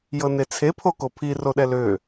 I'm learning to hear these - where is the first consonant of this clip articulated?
palate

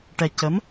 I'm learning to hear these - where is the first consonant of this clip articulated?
retroflex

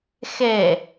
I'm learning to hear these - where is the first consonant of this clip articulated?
velum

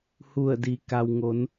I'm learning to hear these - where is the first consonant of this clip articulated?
throat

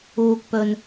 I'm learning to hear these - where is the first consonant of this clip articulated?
velum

